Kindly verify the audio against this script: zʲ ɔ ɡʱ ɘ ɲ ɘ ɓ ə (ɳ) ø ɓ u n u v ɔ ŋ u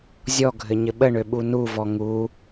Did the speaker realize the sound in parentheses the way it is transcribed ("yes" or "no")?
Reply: yes